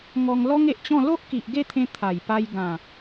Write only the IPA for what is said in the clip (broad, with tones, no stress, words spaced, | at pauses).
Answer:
ŋɔ˧ŋlɔ˦ŋe˨ʔt͡ɕɔ̃˥˧ lo˦ʔki˨ʔɡe˥˧t̪ʰẽ˧ t̪ʰa˨˩jpa˧j ɡã˨˩